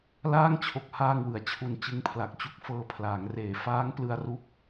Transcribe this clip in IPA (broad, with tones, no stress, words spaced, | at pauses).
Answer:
laː˥˩ŋt͡ɕʰo˨˩k̚ haː˧ŋwɯ˩˦a̯t͡ɕʰu˨˩n t͡ɕɯ˦˥ŋpʰla˨˩k̚t͡ɕu˦˥k̚ fɤː˧pʰlaː˩˦ŋreː˨˩ faː˦˥ŋ plɯ˧a̯ru˦˥k̚